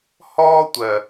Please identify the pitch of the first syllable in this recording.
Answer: high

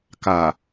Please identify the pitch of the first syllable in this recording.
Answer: low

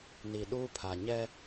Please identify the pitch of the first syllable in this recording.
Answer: low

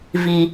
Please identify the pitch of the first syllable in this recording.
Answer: low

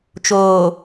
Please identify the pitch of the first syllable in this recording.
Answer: low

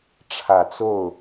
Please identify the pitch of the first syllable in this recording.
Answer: low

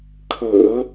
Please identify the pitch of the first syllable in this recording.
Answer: low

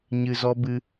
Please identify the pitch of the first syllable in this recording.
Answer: low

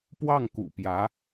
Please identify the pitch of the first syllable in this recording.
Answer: falling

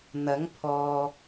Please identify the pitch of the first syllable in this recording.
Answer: rising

